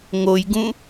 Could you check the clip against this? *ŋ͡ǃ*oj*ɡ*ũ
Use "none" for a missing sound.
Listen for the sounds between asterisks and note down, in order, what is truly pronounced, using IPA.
ŋ, ɡ

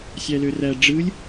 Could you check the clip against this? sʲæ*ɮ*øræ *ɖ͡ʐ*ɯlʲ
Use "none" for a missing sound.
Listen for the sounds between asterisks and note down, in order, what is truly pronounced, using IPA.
l, ɖ͡ʐ

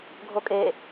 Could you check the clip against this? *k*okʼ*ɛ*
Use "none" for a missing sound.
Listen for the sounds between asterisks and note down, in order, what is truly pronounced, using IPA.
ɡʱ, e

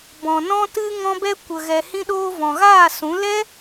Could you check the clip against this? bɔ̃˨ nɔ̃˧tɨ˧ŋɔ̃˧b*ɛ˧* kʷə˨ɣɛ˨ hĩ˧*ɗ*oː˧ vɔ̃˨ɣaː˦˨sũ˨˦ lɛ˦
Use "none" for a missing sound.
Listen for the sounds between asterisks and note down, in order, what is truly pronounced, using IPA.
ɛ˧, ɗ

